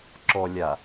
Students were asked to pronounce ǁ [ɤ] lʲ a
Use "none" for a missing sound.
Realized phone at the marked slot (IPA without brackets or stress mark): ɔ